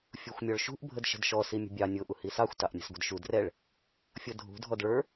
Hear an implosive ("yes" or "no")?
no